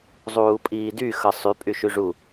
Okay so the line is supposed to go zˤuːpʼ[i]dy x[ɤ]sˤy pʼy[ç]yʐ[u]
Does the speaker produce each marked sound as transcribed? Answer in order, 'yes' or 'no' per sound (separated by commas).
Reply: no, yes, no, yes